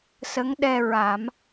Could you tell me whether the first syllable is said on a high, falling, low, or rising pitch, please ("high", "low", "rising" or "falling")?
rising